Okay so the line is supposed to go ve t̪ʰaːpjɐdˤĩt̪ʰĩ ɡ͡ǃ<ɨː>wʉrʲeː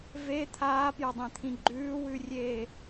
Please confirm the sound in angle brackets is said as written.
no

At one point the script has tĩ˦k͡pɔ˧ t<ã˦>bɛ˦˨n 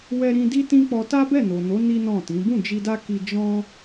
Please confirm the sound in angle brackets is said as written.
no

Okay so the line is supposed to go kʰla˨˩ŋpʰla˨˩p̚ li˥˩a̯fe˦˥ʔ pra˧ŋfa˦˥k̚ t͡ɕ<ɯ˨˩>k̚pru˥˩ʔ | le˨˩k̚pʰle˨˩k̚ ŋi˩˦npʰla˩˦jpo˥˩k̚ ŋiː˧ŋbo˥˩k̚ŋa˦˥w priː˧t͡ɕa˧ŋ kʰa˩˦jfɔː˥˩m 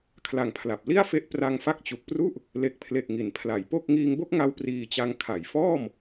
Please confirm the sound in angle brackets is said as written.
no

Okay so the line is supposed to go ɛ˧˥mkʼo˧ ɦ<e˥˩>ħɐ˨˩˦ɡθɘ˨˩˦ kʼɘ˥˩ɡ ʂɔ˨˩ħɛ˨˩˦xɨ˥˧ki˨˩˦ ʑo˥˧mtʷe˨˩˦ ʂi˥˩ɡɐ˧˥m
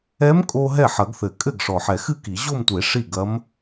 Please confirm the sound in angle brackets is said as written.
no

